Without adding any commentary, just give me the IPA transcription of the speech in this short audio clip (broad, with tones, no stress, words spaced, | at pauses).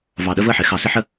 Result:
vɑ˨ɗə˦və˦˨ħɪ˨ xɑ˨sɪ˦ħə˦